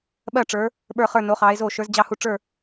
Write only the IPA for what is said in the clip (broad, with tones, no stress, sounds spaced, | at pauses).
ɓ ɜ˦˨ ʈ͡ʂ ə˞˨˦ | ɓ ə˞˦˨ χ ə˞˦˨ n o˨˦ χ ɑ˨˦ e̯ z o˦˨ ʃ ə˞˨˦ z d͡ʑ ɑ˦˨ h u˦˨ ʈ͡ʂ ə˞˦˨